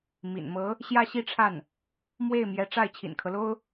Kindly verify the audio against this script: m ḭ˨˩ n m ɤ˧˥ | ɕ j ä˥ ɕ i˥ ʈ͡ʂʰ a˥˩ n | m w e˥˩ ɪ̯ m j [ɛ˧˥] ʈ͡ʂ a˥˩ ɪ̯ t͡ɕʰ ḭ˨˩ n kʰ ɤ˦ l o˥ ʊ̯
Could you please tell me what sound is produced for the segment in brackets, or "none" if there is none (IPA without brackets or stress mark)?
ɛ˧˥